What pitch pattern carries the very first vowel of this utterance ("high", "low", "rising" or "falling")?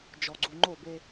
low